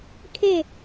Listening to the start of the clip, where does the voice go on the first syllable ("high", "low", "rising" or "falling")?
falling